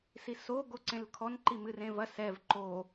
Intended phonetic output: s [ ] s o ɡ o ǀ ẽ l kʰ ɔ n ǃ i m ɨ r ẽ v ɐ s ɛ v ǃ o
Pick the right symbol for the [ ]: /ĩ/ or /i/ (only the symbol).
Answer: i